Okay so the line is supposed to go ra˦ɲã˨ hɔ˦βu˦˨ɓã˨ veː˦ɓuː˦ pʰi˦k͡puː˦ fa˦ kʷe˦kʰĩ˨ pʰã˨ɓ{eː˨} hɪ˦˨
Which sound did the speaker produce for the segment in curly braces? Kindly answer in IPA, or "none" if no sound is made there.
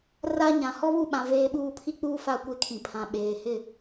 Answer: eː˨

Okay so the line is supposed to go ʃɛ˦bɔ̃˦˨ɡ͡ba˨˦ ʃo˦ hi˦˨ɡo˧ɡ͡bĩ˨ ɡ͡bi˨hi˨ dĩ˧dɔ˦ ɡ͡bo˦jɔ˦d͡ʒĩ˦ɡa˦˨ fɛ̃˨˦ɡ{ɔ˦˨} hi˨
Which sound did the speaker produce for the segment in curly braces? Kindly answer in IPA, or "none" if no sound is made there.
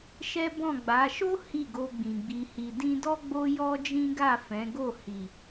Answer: o˦˨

